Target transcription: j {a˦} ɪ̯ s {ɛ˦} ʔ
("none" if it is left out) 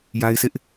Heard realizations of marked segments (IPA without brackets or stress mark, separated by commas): a˦, ɪ˦